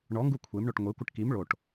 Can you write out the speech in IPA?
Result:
ɳɔŋɡu kʷʰemɳoʈ ŋʷekʷəʈ kim ɭoʈ

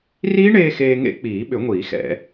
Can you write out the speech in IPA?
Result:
riː˦˥ɳeː˧ xeː˧ŋḛ˦˥ k͡piː˨˩˦ ɓʏ˨˩˦ŋʷiː˨˩˦xɛ̰˨˩˦

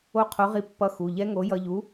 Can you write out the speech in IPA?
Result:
o˧ qʰo˨˥ʁi˧pːʌ˨˥ xu˩˧˩ʎɛ˦˥ŋo˨˥ jʌ˧ʎu˨˥

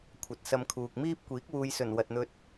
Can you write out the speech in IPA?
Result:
kʷʰɐ˨t̚sɐ˧mkʰuː˨k̚ miː˥p̚kʷiː˨˥k̚ wuː˨jsɵ˨˩n wɐ˨t̚n̪ɵ˧t̚

